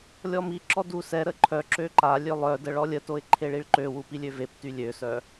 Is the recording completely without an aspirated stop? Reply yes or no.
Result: no